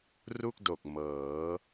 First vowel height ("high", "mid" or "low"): high